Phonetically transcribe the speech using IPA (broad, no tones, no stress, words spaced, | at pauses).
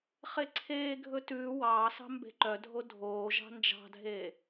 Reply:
χeǀʰeːɡʱɵ tʉː wɑːsɑ̤ mbe̤ǃœdʱo dʱoː ʒɑ̤nd͡ʒɑ̤dʱeː